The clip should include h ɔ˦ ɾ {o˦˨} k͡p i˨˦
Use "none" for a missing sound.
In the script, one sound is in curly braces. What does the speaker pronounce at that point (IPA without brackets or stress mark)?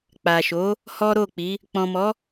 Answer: o˦˨